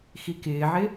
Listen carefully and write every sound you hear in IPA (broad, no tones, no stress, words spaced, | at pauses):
xikɪːʕɪ